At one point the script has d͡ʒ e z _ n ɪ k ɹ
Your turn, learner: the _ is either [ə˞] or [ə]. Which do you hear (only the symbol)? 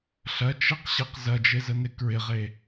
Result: ə